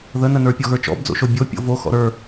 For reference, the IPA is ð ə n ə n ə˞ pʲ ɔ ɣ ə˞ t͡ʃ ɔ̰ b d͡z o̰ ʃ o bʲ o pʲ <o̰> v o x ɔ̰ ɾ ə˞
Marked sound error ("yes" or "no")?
no